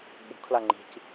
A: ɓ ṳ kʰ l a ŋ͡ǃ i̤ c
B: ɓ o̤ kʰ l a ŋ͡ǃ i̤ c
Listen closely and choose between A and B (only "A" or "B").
A